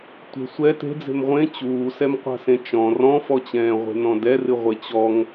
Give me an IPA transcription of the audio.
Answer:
tʷ e̤ sʷ ɛ t e̤ d͡z e̤ m ʁʷ ẽ t͡ɕ uː s ɛ m qʷ a̤ s ẽ t͡ʃ ɔ̃ r ɔ̃ f ɔ t͡ɕ ɛ̃ː ʁʷ e̤ n ɔ̃ d ɛ r ɨ ʁʷ e t͡ɕ ɔ ŋ

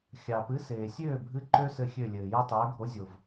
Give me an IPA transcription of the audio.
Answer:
xʲ ɑ˨ p ɨ˨˥ s eː˨ sʲ øː˥˨ bʱ ɨ˦ ǃ ø˦ s ɘ˥˨ xʲ ø˥˨ lʲ ɘː˨ j ɨ˦ tˤ øː˨˥ ɡʱ o˨˥ zʲ o˨ v

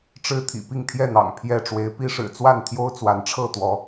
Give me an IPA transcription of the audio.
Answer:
ʈ͡ʂ ɻ̩˦ t̪ʰ ḭ˨˩ p i˥˨ ŋ t̪ʰ j ɛ˥˨ n̪ ɑ̰˨˩ ŋ pʰ j ɛ˥˨ ʈ͡ʂ w e˨˦ ɪ̯ p i˦ ʂ ɻ̩˨˩ t͡s w a˥˨ n t̪ʰ j o˦ ʊ̯ t͡s w a˨˦ n ʈ͡ʂʰ ɤ˥˨ t̪ w ɔ˨˦

